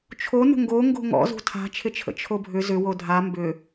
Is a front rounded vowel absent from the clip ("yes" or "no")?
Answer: no